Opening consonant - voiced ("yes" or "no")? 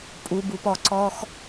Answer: no